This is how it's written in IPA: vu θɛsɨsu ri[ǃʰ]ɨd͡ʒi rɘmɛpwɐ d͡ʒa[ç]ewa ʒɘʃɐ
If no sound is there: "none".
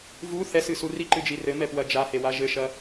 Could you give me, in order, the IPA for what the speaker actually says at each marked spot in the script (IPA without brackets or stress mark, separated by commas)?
ǃ, h